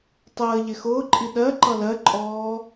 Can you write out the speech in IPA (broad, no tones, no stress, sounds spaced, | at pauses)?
tˤ əː ʎ ɪ x ʊː ǃʼ i ɗ ɜ ǃ ʌ l ɜ ǃʼ ɔː